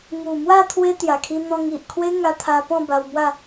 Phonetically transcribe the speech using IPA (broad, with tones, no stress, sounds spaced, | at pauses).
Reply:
ŋ u˨˩ m w a˥˧ t̪ʰ w e˦ t̪ j a˨˩ kʰ i˧ n̪ ɔ̃˧ ŋ i˨ ʔ kʰ w e˦ ŋ a˧ t̪ʰ a˧ p ɔ̃˥˧ b a˧ w m w a˥˧